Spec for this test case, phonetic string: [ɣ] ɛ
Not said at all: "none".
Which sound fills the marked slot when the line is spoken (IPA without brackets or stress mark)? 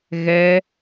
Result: ɣ